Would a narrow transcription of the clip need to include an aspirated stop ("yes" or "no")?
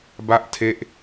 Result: yes